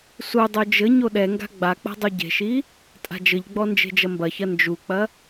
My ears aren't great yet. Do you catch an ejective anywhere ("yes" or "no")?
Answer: yes